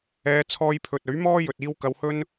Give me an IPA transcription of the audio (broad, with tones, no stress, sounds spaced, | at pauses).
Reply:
ɛː˨˧ t͡sʰ ɔː˧ j pʰ ɵ˨ t̚ ɵ˨˥ ɥ m ɔː˥ j ɵ˨ t̚ iː˧ w k ɐ˧ w h ɵ˥ n